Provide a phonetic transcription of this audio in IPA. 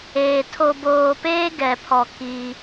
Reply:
eː˨ tʰ o˨ b oː˨ p eː˦ ɡ ɛ˨ pʰ ɔ˨ k i˦

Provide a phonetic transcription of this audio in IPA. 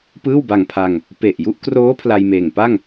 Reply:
p ɯː˥˩ w b a˧ ŋ pʰ a˧ ŋ | p e˨˩ ʔ j u˦˥ ʔ k r oː˦˥ pʰ l a˧ j m eː˨˩ ŋ p a˥˩ ŋ

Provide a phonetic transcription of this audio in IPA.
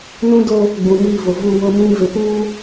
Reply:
n ũ˦ d o˦ | ɡ͡b ũ˨ m iː˦˨ v ʊ˨ v uː˦ w ʊ˦ m ĩ˦ v ɪ˨ p uː˦

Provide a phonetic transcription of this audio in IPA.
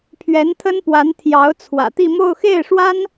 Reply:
pʰ ɥ ɛ˧˥ n t̪ʰ ə˥ n p w a˧˥ n t̪ʰ j ɑ˧˥ ʊ̯ t͡sʰ w ä̰˨˩ t̪ i˥˧ m o˥˧ ʊ̯ x e˥˩ ɪ̯ ʂ w a˥ n

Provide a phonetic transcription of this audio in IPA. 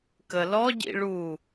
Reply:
k ə l ɔ ɟ ḭ ɭ u

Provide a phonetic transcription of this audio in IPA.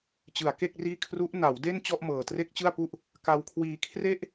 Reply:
t͡ɕ ɯ˩˦ a̯ k e˥˩ k̚ r iː˥˩ kʰ r u˦˥ ʔ n a˩˦ w d e˥˩ n t͡ɕ ɔ˥˩ ʔ m ɤː˨˩ t r e˥˩ k̚ t͡ɕ ɯ˥˩ a̯ p u˥˩ ʔ | k a˧ w kʰ w iː˧ kʰ r e˥˩ ʔ

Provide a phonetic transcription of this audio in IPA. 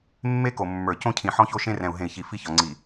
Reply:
mː e˦ k o˨ mː ə˞˨ c õ˦ cʰ ĩ˨ ħ ɔ̃˦ ç o˦ ʃ ẽ˦ r ɛ̃˨ u̯ ɦ ẽ˨ i̯ ç i˨ f i˦ ç ɒ˨ ŋ͡ǀ i˨

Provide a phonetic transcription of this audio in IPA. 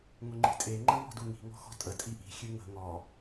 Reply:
ŋ ʊ ŋ͡ǃ i̤ tʼ e ŋ͡ǃ ə ŋ ɔ̤ d u ŋ i̤ ŋ ɔ̤ x ɔ̤ tʼ ə tʼ i ʔ i̤ xʲ ɨ ŋ ə̤ ŋ ɔ

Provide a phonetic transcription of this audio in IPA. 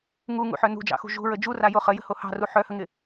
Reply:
ŋ u ŋ ṵ ħ œ n ṳ d͡ʒ ɑ̰ x ṳ ʒ ṳ ɹ ə d͡ʒ u r a j o χ ə j ə̤ h o h ɑ̤ r u ħ œ h ə ŋ ɪ

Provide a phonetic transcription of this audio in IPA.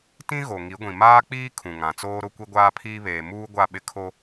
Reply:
t ĩ˦ ɣ o˨ ŋ i˨˦ ɡʷ ĩ˨ m aː˦ k͡p iː˦ kʰ ũ˨ ŋ ã˨ t͡s oː˦ ɾ ʊ˦ kʷ i˦ ɡʷ aː˦ pʰ iː˦ β eː˨ m uː˦ ɡʷ a˦˨ ɓ ɪ˦ kʰ o˦

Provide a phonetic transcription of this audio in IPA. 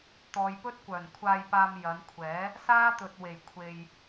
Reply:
t̪ ɔː˨ j p ɵ˥ t̚ kʷ œː˨˩ n kʷʰ aː˧ j p aː˧ m j ɐ˨˧ n kʷʰ ɛː˨˥ | s aː˥ t̪ ɵ˨ t̚ w e˨˩ j kʷʰ e˨ j

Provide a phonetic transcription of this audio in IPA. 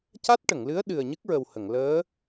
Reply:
c a˦˥ t̚ ʈ ə˨˩˨ ŋ l ɨ˧˥ ə̯ ɗ ɨ˨˩ ə̯ ɲ ɨ˦˥ k̚ ɹ ə˨˩ w h ə˨˩˨ ŋ l əː˧˥

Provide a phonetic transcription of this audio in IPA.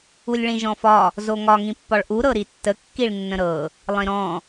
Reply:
u lʲ ɭ ĩ ʒ ɔ̃ f ɒ | z o ŋ ɒ ŋ ĩ pː ɒ ɭ ʔ u ɾ ɤ ɾ i tː ə kː i ɭ nː ə̃ ɾ ɤ | lˠ ĩ ɾ ɔ̃

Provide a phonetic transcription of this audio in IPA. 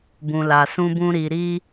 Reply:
b ũ˨ l a˨ s ũ˨ b ũ˨ ɾ i˨ ɾ i˧

